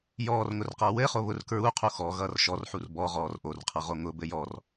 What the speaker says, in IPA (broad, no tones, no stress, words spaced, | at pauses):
jɔːrŋʊrqʌː wɘ χoβʊr kɹu qʰuxɔ ɣʌːrʃɔrħur bɔʁɔːr ʔorqʰʌʁo ŋʊ bɘjɔr